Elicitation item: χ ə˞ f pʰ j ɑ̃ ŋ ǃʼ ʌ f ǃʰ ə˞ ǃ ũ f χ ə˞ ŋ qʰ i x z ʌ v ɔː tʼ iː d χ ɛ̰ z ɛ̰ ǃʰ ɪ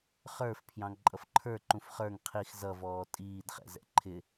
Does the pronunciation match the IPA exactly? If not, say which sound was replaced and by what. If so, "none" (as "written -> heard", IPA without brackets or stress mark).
none